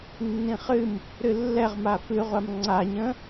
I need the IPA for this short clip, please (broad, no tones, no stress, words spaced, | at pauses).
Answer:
nːĩχɨm | ɾɨlːɛʁma fɨʁʷam ŋ͡ǀaɲə̃